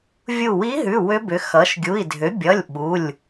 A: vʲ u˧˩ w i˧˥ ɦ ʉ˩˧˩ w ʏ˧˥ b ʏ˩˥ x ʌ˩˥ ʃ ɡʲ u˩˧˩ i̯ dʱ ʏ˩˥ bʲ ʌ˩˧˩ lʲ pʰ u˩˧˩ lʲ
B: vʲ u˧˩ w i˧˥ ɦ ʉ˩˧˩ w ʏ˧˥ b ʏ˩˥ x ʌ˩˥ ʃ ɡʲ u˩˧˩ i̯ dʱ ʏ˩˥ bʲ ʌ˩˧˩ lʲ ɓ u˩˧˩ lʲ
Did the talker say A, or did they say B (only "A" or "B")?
B